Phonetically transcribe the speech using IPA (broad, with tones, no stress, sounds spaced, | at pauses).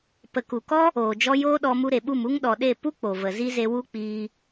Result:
p ə˨ k u˨ k ɔ˦ | oː˨ d͡ʒ ɔ˦ j oː˦ ɗ ɔ˧ m u˧ ɾ e˨ ɓ u˦˨ m u˧ ŋ ɗ ɔ˨ ɗ e˦˨ p u˦ k͡p o˨ v ə˨ z i˦ z e˧ w u˦ k͡p iː˧